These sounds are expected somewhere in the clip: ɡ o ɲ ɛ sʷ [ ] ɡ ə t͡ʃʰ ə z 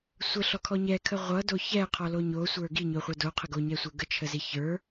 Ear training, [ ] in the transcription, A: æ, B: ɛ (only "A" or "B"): B